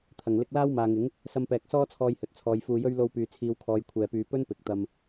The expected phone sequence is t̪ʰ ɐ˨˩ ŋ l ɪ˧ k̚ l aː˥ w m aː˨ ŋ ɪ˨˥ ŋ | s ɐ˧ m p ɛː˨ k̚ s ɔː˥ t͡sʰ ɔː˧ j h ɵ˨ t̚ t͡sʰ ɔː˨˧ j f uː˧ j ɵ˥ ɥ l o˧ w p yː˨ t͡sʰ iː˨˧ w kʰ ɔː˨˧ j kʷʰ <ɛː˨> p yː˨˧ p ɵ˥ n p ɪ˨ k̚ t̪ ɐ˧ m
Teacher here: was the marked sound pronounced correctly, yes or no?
yes